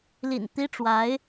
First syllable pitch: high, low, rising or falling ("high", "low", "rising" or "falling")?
low